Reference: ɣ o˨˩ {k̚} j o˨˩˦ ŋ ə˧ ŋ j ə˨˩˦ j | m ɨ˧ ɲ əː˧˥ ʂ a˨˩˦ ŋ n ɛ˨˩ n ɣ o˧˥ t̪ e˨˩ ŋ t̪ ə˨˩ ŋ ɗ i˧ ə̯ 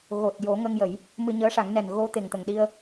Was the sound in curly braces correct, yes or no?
no